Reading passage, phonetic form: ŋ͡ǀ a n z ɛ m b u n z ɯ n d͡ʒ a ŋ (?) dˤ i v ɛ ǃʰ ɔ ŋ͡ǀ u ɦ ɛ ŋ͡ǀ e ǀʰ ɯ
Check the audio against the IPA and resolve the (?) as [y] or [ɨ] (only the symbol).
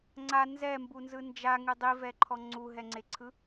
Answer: ɨ